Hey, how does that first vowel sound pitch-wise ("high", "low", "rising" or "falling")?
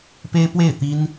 high